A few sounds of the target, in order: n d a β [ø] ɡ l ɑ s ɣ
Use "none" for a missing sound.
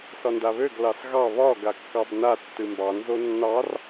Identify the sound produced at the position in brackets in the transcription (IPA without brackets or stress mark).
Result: ø